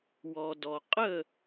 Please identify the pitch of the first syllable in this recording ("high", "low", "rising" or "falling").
low